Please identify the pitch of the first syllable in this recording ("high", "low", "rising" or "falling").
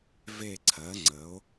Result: falling